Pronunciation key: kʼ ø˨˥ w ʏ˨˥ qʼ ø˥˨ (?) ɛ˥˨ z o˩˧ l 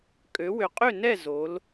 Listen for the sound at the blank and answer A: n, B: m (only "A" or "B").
A